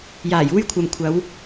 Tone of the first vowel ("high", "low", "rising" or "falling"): low